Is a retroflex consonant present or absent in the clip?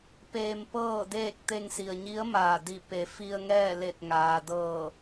absent